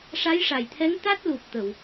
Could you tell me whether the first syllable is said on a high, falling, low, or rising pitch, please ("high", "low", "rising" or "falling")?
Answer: rising